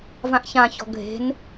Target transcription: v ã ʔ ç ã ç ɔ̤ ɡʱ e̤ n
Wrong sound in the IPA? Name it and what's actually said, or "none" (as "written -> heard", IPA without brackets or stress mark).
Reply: none